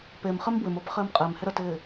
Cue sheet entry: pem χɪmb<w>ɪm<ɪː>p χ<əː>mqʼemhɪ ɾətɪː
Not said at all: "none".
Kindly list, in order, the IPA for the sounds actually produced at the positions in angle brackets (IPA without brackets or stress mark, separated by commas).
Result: w, əː, ɪː